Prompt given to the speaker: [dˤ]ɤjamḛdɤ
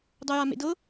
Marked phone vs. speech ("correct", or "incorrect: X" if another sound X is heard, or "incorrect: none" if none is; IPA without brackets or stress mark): correct